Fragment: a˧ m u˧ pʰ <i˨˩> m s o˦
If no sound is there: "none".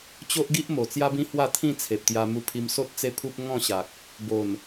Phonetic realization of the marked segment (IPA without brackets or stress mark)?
i˧